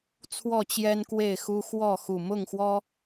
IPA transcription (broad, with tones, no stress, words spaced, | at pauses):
t͡sʰwɔ˥˨t͡ɕjɛ˦nkwe˥˨ɪ̯xu˦ xwɔ˥˨ xu˨˩mʊ˥˨ŋxwɔ˦